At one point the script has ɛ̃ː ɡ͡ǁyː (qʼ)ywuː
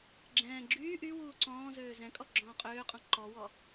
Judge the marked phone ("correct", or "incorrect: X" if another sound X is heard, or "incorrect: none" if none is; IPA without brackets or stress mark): incorrect: ʔ